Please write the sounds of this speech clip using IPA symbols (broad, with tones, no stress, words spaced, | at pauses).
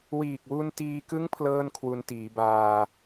wiː˨˩k̚wu˧ntiː˧kɯ˦˥ŋ pʰlɤː˥˩nkʰwu˧ntiː˩˦baː˧